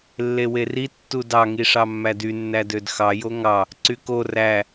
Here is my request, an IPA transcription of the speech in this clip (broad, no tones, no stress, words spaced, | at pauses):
lːeweri tːudɑ ŋiʂɑmːædy nːædødxɑ joŋɑ | ǀyko ræ